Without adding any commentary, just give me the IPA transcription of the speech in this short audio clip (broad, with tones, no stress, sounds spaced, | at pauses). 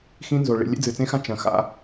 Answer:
x ĩ˦ n z o˨ ɭ ḭ˨ lʲ ḛ˦ d͡z ɨ˨ t͡s ẽ˦ x ã˦ t͡ʃ ɐ̃˨ x a̰˦